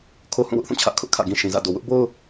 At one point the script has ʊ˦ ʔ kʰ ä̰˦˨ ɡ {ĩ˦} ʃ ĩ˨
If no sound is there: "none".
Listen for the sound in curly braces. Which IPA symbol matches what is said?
ĩ˦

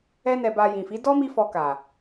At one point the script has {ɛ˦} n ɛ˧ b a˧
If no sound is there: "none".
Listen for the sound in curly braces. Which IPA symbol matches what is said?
ɛ˦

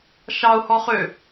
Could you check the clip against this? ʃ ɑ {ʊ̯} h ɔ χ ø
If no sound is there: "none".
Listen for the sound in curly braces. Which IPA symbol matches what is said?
ʊ̯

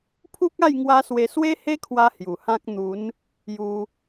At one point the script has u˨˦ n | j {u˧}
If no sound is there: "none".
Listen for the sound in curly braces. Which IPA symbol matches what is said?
u˧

